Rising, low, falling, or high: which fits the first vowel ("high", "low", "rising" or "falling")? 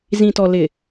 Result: low